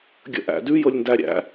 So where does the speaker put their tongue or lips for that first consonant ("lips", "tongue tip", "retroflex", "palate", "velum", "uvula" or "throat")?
velum